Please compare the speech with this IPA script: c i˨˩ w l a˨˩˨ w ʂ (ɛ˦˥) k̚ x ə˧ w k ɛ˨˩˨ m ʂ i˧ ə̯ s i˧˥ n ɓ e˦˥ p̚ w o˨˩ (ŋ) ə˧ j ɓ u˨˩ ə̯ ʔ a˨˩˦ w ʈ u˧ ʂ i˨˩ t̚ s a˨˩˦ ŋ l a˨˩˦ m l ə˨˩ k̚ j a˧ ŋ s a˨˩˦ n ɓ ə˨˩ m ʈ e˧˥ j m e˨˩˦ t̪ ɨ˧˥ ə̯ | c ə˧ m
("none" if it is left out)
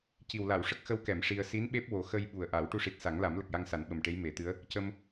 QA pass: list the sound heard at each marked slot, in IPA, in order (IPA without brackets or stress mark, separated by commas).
ə˦˥, x